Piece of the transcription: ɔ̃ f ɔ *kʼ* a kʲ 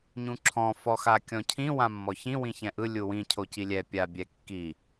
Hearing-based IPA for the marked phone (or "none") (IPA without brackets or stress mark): x